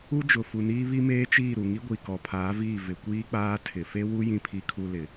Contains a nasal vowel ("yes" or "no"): yes